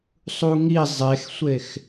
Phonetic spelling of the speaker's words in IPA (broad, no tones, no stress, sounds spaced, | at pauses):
sˤ u ŋ i zˤ e x sʷ e x